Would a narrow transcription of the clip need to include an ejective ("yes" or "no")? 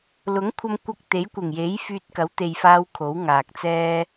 no